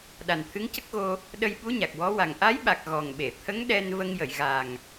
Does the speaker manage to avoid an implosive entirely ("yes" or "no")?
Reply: no